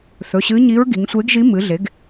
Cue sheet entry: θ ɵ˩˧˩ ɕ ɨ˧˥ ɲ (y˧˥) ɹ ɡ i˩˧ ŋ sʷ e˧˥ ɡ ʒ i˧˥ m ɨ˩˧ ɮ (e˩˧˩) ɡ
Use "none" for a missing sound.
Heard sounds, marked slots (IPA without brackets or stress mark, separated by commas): i˧˥, e˩˥